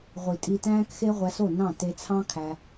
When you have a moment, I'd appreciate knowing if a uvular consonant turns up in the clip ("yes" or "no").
yes